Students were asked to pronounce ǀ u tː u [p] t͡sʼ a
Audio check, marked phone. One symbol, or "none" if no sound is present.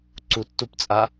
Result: p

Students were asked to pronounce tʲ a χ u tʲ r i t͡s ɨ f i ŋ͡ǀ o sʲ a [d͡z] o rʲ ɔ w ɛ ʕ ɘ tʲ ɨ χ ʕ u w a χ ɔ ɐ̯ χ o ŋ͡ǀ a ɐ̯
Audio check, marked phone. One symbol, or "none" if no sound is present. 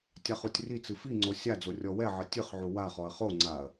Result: d͡z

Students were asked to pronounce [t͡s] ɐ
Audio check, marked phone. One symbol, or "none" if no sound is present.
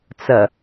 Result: t͡s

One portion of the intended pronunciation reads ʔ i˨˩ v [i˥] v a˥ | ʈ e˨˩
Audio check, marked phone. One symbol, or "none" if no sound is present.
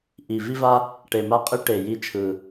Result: i˥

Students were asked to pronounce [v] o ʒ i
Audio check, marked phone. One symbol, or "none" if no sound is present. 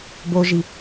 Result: b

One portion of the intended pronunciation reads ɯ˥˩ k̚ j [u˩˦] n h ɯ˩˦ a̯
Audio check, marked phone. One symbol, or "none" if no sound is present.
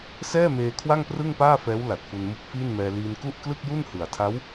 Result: u˥˩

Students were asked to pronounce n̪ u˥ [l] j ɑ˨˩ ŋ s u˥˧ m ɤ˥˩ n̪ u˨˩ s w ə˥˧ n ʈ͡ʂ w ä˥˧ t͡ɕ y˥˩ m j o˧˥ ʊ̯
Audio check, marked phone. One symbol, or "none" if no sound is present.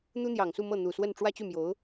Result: n̪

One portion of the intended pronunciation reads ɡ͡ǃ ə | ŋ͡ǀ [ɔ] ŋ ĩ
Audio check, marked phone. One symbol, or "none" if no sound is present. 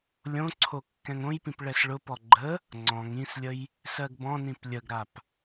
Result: ɔ̃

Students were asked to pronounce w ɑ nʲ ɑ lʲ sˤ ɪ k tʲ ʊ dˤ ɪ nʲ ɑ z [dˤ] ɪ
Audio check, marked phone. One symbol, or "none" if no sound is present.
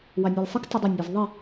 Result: ðˤ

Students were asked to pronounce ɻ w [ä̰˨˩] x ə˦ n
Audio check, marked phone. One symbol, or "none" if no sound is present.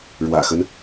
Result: ä̰˨˩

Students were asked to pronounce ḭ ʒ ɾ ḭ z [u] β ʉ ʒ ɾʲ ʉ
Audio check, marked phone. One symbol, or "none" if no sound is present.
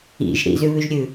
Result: ʉ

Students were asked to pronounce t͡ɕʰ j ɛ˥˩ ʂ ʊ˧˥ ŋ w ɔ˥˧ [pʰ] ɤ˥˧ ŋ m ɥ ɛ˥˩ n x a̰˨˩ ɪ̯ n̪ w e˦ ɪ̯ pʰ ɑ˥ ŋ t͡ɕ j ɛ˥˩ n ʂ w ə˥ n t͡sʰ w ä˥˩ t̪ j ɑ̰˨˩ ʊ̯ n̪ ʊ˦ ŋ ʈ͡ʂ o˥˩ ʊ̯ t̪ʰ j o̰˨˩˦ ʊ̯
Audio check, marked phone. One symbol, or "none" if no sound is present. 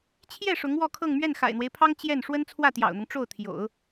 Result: kʰ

